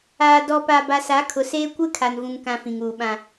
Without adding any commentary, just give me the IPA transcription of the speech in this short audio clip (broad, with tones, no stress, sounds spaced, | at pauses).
aː˨ d ɔ˨ p a˨ b a˨ s a˨˦ kʰ ʊ˨ s eː˦ kʷ ɪ˦ kʰ a˨ n v ũ˨ ŋ k ã˦ f ĩ˨ ŋ uː˨ ɓ ã˨